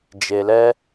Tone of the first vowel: low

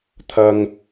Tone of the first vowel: low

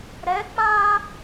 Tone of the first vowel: rising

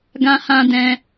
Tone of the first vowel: high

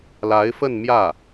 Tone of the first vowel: rising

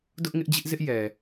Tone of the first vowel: high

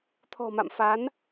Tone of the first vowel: low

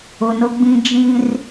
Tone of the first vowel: low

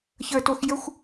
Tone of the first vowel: high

